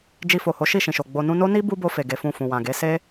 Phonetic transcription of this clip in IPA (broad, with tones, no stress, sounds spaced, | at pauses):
d͡ʒ i˧ f o˨ h o˨˦ ʃ i˦˨ ʃ ĩ˨ ʃ o˨ ɡ͡b o˨ n ũ˧ n o˦ n i˦ b u˦ b o˧ f e˨ ɡ e˨˦ f ũ˦˨ f ũ˨ w ã˨ ɡ e˨˦ s e˦